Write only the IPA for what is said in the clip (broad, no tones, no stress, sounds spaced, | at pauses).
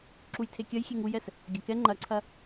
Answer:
ǁ u j tʰ e kʲ ɐ j xʲ e ŋ u j ɛ s | ɡʲ ɐ k ɛ ŋ͡ǃ ɐ ǀʰ ɐ